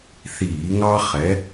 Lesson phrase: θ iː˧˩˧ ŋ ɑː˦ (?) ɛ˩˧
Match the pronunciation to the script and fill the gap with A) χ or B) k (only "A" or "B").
A